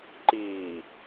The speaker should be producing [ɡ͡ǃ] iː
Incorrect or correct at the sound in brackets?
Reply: incorrect: ǃ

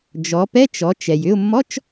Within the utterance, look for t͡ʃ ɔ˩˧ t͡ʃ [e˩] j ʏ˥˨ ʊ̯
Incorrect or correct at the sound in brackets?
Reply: incorrect: ɛ˩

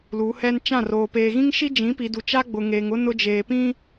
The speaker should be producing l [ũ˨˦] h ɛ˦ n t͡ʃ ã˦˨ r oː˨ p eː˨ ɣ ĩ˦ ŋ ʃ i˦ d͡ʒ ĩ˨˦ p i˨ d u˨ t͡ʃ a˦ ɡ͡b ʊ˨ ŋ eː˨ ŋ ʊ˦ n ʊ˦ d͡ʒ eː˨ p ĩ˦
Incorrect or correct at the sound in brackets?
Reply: incorrect: u˨˦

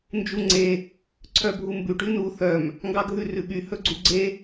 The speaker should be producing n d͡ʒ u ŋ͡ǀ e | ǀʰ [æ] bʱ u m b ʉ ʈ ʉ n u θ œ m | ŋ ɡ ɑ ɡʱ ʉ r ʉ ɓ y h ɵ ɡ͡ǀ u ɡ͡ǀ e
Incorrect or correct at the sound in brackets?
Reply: incorrect: œ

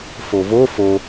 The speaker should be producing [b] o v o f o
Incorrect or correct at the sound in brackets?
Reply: incorrect: f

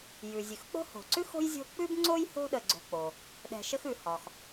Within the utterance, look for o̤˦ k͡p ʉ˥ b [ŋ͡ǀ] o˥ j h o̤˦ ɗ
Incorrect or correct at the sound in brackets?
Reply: correct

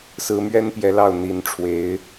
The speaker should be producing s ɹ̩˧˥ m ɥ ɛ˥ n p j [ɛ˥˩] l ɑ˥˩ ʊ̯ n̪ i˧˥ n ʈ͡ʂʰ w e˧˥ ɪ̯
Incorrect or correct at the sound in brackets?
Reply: incorrect: ɛ˧˥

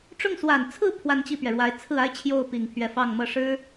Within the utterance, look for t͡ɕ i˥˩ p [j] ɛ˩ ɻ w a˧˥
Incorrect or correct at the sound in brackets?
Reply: incorrect: ɥ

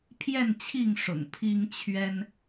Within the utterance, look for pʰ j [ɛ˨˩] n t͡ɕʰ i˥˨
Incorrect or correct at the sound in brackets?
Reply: incorrect: ɛ˥˨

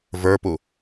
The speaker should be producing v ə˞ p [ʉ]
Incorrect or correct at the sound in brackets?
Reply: incorrect: u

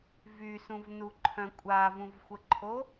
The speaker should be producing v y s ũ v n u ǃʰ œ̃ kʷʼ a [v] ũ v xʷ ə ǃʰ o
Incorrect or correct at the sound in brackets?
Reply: correct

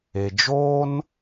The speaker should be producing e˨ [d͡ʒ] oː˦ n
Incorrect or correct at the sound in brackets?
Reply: correct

